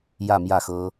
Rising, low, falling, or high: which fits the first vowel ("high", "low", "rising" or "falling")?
falling